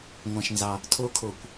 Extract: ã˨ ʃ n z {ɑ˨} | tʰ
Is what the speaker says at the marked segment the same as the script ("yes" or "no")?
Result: yes